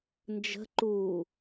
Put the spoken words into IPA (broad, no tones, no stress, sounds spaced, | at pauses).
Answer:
n d͡ʒ ə̤ ǃ uː